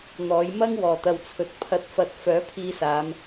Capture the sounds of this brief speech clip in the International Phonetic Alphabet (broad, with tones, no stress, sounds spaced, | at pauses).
n̪ ɔː˨˥ j m ɐ˥ ŋ w ɔː˨˩ t̪ ɐ˨ w t͡sʰ ɵ˨ t̚ pʰ ɐ˧ t̚ f ɐ˧ t̚ f œː˨˥ pʰ iː˧ s aː˨˧ m